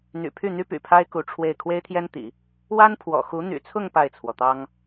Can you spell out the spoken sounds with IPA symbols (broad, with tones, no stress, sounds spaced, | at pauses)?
n̪ y̰˨˩ pʰ y˥˩ n̪ y˥ p y̰˨˩ pʰ a˥ ɪ̯ k u˧˥ ʈ͡ʂʰ w e˥˩ ɪ̯ kʰ w e˥ ɪ̯ t̪ʰ j ɛ˥ n t̪ ḭ˨˩˦ | w a˥ n pʰ w ɔ̰˨˩ x u˧˥ n̪ y̰˨˩ t͡sʰ ʊ˥˧ ŋ p a˥˩ ɪ̯ t͡sʰ w ɔ˩ t̪ ɑ˥ ŋ